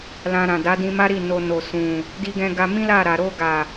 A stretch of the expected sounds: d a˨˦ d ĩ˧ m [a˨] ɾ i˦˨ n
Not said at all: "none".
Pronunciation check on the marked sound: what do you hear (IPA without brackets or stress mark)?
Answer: a˦